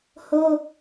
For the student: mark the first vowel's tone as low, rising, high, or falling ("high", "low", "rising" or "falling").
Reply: high